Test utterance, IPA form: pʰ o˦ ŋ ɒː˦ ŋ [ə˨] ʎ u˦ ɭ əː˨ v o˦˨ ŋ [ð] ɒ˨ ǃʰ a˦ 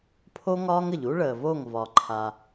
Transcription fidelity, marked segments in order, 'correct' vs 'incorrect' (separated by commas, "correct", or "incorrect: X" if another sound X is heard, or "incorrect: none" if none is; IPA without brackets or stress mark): correct, incorrect: v